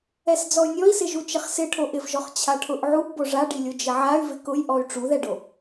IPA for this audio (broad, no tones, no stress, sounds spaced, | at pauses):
ɛ s d͡z ɔ y̯ nʲ ɔ i̯ s ɪ ʒ u t͡ʃ ɪ χ s ɪ ʈʰ o ʔ ɪ v ʒ ɔ χ t͡ɕʰ a ʈʰ ʊ ʔ ʕ u ʔ b o ʐ a ɖ i lʲ o d͡ʒ ɪ ʕ a y̯ v ɪ k ʊ j ʔ ɔ y̯ ʈ͡ʂ u ð ɛ ɖ o